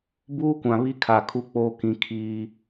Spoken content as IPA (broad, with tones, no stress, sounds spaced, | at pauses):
b uː˦ kʷ ã˨ β i˦ kʰ a˨ kʰ u˦ k͡p oː˦ k ĩ˦ kʰ iː˦